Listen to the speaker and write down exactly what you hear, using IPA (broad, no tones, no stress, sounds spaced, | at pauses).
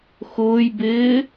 x ʊː j b ɪː